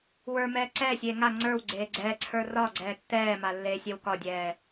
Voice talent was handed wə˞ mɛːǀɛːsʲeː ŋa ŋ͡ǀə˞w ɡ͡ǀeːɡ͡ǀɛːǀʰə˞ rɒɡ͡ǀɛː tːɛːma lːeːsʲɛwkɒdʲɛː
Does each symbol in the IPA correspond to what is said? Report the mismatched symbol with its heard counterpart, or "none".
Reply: none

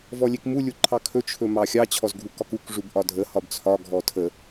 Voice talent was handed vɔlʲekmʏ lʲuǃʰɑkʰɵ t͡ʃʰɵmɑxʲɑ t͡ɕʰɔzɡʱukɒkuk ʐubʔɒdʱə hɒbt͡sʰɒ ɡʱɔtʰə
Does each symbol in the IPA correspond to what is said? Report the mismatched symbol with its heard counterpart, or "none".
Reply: ʏ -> u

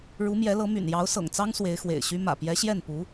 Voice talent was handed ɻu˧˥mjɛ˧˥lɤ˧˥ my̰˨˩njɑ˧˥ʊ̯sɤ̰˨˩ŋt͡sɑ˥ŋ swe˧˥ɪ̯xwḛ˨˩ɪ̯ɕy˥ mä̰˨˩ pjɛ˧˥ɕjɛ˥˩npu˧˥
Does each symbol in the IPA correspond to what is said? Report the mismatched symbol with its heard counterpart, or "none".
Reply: none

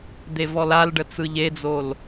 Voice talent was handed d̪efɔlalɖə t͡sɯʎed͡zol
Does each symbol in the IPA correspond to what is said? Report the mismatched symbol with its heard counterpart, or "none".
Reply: f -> v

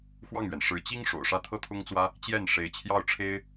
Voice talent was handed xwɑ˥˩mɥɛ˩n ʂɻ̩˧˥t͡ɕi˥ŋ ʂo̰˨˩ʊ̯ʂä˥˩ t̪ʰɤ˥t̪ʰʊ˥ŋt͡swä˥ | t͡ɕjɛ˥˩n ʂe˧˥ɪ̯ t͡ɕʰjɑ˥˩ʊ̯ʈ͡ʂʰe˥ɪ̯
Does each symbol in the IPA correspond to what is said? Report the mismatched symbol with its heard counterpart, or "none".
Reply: m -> ŋ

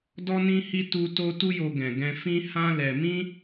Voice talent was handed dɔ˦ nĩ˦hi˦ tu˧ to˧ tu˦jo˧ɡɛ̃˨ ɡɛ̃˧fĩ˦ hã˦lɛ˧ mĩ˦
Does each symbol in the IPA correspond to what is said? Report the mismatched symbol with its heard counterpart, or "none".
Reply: none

